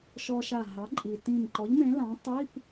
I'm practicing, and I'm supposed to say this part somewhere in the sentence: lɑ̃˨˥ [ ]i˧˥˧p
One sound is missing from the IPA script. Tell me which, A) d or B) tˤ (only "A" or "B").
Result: B